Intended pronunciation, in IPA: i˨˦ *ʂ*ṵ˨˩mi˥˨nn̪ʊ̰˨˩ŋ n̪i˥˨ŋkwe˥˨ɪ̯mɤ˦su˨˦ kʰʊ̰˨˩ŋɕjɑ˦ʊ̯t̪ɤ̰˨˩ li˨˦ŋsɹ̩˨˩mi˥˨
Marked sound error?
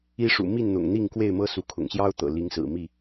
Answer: no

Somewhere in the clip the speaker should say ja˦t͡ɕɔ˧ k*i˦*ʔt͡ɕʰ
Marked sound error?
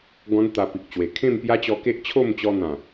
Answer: yes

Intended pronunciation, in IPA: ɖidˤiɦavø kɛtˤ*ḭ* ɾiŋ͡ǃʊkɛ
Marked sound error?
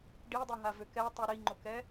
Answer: yes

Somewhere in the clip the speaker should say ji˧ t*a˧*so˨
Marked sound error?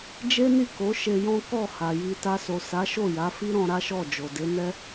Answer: no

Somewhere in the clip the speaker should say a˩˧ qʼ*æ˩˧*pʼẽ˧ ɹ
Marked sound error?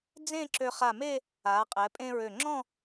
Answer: yes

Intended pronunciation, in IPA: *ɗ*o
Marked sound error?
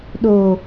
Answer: no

